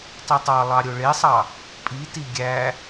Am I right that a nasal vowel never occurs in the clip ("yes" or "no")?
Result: yes